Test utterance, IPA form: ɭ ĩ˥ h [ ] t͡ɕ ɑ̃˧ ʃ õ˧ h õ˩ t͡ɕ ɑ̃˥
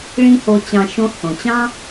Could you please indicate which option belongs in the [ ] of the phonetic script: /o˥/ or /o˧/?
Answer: o˧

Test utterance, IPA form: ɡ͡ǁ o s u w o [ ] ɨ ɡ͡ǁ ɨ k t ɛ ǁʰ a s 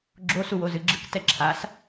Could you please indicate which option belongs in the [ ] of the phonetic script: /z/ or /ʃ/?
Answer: z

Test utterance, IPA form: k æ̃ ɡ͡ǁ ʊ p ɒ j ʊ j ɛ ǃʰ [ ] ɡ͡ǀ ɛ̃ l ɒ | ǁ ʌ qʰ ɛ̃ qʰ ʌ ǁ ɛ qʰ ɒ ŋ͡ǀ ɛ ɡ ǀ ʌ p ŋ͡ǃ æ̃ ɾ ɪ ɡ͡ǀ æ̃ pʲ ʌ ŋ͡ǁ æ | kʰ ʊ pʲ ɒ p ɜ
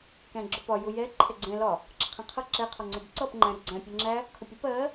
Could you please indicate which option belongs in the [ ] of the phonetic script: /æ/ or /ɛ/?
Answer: ɛ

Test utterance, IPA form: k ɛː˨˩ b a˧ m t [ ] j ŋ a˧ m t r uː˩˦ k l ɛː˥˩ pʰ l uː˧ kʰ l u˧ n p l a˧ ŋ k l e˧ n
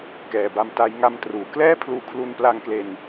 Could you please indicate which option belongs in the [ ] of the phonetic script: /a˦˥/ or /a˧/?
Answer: a˦˥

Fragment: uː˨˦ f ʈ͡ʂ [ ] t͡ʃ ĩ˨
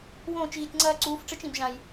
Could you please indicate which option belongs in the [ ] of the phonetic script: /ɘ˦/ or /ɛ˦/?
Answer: ɘ˦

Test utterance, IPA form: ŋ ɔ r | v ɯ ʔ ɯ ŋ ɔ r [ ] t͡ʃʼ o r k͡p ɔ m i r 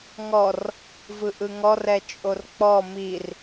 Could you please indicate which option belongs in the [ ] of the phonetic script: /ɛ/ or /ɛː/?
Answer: ɛ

